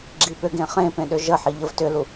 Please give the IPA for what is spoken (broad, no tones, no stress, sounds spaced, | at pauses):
ɡ͡ǁ i p ʏ ɡ ẽ χ ẽ p ẽ ɗ ʏ ʒ ə ħ i ʎ ə v t ʏ l u